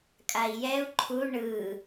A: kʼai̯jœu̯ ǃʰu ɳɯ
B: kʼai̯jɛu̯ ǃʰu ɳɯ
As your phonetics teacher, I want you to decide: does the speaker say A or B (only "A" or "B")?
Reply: B